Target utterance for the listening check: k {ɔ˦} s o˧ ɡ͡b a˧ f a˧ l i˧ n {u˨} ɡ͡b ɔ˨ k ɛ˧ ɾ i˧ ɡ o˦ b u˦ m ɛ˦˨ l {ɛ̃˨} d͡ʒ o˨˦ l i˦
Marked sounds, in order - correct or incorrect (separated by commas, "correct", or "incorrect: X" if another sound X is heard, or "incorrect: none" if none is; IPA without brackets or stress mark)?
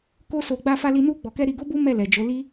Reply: incorrect: o˦, incorrect: u˧, incorrect: ɛ˨